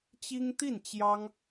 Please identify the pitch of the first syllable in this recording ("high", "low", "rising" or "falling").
high